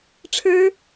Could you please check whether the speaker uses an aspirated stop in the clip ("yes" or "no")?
yes